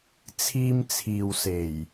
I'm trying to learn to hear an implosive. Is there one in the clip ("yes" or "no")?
no